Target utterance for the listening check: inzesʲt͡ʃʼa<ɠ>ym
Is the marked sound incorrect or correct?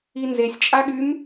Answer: correct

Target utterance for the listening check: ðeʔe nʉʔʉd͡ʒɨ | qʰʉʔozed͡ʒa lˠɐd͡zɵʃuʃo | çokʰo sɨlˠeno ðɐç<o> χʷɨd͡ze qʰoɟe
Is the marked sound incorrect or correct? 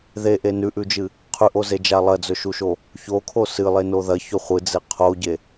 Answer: incorrect: ɵ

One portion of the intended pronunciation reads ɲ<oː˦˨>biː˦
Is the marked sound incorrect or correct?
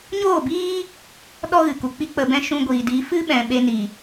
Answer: correct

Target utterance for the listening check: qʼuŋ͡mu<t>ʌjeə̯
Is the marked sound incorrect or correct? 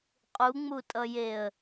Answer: incorrect: tʼ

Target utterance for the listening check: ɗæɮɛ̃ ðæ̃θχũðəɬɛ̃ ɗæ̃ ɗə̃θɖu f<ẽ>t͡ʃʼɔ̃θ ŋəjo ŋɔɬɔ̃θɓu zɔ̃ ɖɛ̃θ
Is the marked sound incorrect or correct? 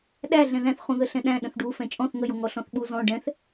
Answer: incorrect: ɛ̃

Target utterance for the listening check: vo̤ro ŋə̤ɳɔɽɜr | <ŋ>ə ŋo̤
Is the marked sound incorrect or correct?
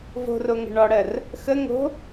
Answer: incorrect: x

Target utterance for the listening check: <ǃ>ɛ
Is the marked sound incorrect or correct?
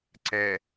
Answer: incorrect: ǀ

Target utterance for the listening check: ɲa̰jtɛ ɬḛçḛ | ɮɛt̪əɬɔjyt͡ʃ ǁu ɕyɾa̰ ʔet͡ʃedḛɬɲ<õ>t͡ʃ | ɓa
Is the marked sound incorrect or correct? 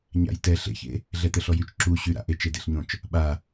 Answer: correct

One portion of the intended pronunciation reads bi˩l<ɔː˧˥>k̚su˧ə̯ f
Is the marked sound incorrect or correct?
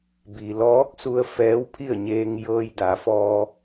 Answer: correct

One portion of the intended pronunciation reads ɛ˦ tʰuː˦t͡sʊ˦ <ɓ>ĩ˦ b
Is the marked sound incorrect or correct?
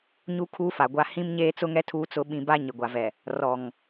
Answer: correct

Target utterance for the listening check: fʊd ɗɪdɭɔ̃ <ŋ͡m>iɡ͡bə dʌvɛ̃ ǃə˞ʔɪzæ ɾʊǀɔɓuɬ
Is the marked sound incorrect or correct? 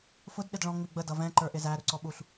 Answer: correct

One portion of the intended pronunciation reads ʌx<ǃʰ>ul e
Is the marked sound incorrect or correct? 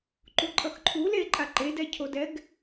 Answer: correct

